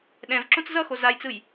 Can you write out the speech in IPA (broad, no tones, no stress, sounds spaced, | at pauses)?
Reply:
ɗ ɛ̃ v ǁ õ t͡s z ʌ x o z a j t͡s ɯ j